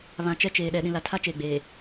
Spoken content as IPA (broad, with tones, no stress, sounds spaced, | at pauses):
β ã˨ t͡ʃ ɛ˦ t͡ʃ eː˨ ɗ ɛ˨ ɗ ĩ˨ l a˨ tʰ a˦ t͡ʃ eː˨ ɡ͡b eː˨